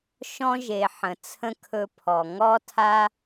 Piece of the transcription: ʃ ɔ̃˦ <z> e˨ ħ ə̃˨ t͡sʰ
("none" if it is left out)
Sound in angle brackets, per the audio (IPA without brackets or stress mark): ʒ